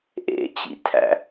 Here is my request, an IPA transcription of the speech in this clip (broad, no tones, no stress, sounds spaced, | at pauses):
ʔ ḛ t͡ɕ ḭ tʰ æ̰